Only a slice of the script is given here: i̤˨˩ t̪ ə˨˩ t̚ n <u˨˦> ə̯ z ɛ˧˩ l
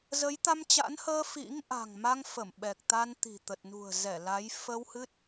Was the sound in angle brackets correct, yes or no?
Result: no